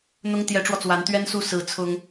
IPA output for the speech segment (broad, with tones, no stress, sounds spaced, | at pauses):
n̪ ʊ˥ ŋ t̪ j ɛ˧˥ ʈ͡ʂ w ɔ˧ t͡s w a˧˥ n t̪ ɥ ɛ˥ n s u˥˩ s ɹ̩˧˥ t͡sʰ ʊ˥ ŋ